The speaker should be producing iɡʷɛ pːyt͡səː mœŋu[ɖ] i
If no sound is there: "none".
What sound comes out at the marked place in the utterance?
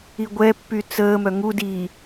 d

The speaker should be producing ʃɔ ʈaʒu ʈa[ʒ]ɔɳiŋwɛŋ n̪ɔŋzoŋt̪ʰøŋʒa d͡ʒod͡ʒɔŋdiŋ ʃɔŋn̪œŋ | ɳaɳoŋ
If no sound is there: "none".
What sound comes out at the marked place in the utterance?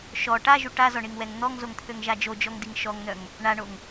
z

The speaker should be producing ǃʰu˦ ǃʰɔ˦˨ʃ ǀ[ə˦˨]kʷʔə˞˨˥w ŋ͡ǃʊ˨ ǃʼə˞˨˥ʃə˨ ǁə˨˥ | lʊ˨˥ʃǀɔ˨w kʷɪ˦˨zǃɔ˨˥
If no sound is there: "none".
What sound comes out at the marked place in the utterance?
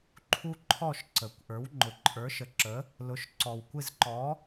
ə˨˩˦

